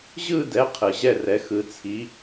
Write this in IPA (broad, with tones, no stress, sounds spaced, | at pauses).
ʑ ɯ˥˧ d ɛ˨˥ qʰ ɯ˨ ʑ ɛ˥˧ r ɛ˨˥ x ɯ˨˥ t͡sʰ i˨˥